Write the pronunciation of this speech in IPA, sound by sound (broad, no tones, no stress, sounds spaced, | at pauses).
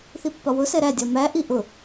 θ i pː ɒ w ʊ s ɛ ɾ æ dʲ ɒ m æ ʔ i ʔ ʊ